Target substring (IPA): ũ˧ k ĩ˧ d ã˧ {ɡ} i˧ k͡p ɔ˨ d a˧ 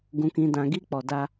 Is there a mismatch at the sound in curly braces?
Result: no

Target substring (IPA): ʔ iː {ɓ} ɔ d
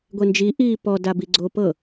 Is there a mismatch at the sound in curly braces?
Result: yes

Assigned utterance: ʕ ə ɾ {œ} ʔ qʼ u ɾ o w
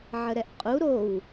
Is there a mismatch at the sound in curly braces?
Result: yes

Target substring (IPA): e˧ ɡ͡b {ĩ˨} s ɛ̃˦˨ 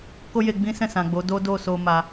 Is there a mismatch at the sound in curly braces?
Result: yes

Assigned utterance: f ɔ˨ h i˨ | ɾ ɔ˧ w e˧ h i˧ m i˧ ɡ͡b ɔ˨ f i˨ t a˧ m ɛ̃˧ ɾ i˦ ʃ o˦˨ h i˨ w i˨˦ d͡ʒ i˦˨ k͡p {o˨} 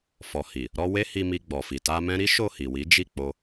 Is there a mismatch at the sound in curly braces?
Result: yes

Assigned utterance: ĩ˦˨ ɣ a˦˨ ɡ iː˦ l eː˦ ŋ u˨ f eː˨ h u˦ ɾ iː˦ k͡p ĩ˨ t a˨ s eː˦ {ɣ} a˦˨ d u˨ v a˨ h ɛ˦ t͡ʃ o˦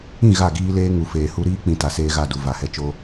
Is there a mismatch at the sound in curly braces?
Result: no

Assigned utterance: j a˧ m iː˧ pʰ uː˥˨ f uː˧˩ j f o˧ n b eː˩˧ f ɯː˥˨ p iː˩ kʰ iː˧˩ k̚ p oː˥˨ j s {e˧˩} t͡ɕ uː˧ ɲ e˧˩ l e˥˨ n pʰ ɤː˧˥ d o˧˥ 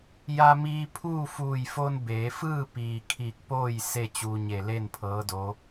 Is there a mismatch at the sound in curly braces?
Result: yes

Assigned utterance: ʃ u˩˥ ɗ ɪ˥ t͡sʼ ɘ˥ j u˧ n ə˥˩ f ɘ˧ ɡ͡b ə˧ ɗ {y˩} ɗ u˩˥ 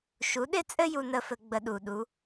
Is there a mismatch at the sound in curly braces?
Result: yes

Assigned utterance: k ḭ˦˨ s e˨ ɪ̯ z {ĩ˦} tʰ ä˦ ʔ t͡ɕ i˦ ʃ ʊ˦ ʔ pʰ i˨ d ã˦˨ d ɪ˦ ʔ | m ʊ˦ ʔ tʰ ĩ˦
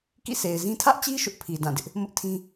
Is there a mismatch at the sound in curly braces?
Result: no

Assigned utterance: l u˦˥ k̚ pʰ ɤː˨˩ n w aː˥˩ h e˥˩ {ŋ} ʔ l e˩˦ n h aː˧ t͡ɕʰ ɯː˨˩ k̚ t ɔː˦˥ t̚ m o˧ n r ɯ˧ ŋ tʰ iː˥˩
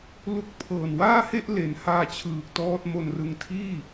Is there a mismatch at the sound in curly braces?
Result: yes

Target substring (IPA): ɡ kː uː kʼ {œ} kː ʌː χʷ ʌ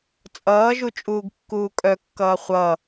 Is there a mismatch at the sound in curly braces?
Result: no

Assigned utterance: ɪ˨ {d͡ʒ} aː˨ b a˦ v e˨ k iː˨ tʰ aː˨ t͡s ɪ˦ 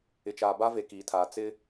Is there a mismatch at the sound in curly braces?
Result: yes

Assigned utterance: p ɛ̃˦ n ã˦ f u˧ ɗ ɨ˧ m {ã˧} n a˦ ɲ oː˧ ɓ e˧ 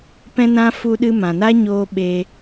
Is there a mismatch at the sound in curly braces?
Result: yes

